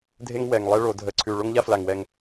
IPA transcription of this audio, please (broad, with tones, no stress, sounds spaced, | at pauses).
dʱ e˦ ŋ w ɛ˨˩ ŋ lˠ ɛ˦ ɭ o˧˩˧ dʱ ə˨˩ ǀʰ ʉ˨˩ ɭ o˦ ŋ ʎ a˦ f l a˨˩ ŋ w ɛ˨˩ ŋ